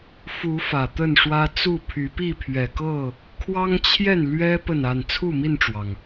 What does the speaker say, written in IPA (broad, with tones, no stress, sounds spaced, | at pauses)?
f u˨˦ f ä˨˩ t̪ ə˥˨ n ʂ w ä˦ t͡s u˥˨ pʰ y˨˦ p i˥˨ pʰ ɥ ɛ˨˩ k ɤ˥˨ | kʰ w ɑ˦ ŋ t͡ɕʰ j ɛ˥˨ n l ɥ ɛ˦ p ə˥˨ n a˥˨ n t͡sʰ u˥˨ m i˥˨ n ʈ͡ʂ w ɑ˩ ŋ